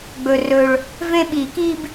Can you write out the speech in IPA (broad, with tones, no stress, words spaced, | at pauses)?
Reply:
ɡ͡bɵ˨˩rɵ˨˩ɭ | vẽ˦ɓi˨˩˦ ki˦b